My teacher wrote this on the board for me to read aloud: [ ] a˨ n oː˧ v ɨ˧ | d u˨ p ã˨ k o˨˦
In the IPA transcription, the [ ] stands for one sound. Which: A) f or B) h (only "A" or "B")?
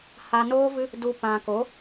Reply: B